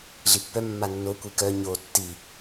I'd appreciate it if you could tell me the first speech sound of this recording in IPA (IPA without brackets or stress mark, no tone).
ɮ